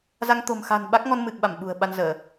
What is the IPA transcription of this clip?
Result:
z a˧ ŋ t̪ o̤˨˩ m x a̤˨˩ n ɓ a˦˥ k̚ ŋ ɔ˧ n m ɨ˨˩ k̚ ɓ a˧˩ m ɓ ṳ˨˩ ə̯ ɓ a˧ n z əː˧˩˨

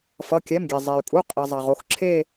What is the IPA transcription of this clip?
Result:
f ʌ˩˧˩ kʲ ɛ˩˧˩ m ɡʲ e˩ zˤ e˩ y̯ kʼ u˩˧˩ qʼ i˩ zˤ a˩ ʁ o˦˨ x ǁʰ e˦˨

